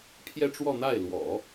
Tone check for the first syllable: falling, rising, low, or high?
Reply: falling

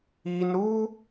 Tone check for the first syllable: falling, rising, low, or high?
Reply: high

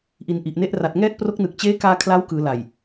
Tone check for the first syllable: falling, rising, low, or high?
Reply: low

